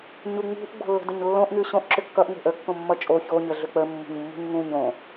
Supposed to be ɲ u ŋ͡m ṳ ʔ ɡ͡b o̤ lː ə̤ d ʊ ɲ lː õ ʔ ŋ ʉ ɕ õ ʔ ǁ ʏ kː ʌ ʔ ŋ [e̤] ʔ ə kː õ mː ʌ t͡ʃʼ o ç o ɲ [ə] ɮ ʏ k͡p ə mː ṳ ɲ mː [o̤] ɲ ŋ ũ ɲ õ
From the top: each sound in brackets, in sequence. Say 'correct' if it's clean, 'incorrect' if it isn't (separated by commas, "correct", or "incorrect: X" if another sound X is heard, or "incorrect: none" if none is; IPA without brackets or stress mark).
correct, correct, incorrect: ṳ